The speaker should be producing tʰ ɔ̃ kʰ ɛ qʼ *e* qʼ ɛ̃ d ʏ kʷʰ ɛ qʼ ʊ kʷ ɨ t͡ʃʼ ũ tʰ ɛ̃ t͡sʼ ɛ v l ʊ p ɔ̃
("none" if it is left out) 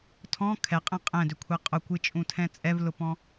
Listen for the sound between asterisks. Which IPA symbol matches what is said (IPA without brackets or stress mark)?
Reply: ẽ